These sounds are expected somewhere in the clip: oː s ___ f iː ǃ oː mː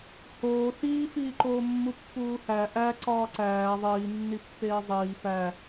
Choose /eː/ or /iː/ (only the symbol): iː